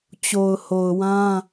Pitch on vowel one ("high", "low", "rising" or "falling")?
low